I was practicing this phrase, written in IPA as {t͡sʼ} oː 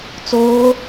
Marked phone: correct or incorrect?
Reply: incorrect